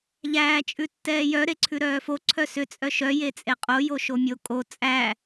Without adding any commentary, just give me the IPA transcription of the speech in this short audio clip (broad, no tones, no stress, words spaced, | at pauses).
ʎæːt͡ʃʼʉtːɛːjœ ɾeǀʰʉɾœːfo ǀʰœsʏ t͡sʼœʃœ jet͡sʼeqʼo joʃomʲo kʼo t͡sʼæ